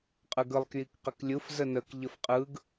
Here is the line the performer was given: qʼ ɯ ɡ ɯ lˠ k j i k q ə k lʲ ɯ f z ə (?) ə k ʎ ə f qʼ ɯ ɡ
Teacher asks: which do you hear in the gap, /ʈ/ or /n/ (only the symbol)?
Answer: n